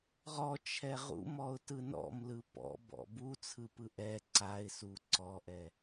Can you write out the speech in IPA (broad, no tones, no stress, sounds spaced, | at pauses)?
ʁ ɔ t͡ʃʰ ɛ ʁ ṵ m ɔ ʊ̯ t ɯ n ɔ̰ m l ɯ p ɔ̰ b ɔ̰ b u t͡sʰ ɯ p ɯ ʔ ɛ ǀ a ɪ̯ s u ǀ ɔ ʔ ɛ